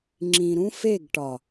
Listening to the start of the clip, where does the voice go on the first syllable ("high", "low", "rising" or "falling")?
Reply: low